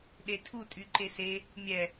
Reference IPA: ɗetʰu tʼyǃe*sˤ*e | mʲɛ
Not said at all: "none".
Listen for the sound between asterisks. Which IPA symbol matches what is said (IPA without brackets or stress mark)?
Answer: s